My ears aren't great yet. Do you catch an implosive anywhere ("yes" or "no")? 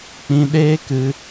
yes